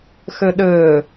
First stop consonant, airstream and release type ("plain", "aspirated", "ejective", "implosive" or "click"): implosive